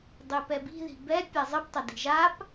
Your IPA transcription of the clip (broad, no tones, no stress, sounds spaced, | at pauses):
dˤ e p ɛ b i̤ ð i̤ b ɛ pʲ a zˤ ɨ p tˤ ɐ d i̤ ʒ a p